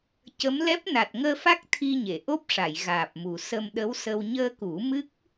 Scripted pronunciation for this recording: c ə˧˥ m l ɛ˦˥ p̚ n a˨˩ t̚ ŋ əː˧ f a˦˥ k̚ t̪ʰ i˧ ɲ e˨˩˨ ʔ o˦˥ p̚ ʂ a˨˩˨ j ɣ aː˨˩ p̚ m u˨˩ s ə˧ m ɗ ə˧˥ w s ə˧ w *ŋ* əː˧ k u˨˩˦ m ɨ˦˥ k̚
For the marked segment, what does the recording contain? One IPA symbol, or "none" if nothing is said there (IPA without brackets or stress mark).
ɲ